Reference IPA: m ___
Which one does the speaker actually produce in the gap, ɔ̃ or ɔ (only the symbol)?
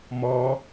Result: ɔ